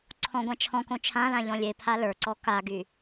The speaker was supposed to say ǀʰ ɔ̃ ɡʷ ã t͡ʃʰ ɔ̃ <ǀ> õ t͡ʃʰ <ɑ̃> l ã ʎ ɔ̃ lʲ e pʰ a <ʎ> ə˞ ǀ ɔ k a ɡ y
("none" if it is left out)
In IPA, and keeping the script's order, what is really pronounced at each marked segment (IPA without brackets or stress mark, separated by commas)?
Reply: k, ã, l